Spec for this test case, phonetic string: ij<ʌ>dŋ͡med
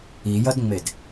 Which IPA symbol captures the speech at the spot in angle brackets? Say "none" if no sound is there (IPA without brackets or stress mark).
ʌ